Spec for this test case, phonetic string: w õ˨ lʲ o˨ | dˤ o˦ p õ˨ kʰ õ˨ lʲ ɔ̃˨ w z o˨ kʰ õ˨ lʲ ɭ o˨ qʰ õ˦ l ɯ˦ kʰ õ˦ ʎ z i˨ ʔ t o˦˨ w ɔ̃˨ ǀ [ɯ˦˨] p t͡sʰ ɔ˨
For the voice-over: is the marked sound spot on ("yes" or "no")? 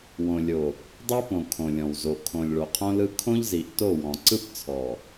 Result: yes